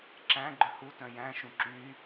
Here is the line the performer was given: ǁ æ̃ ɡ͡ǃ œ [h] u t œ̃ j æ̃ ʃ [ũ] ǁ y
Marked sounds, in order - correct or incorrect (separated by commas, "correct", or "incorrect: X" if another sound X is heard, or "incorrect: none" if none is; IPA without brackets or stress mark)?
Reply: correct, correct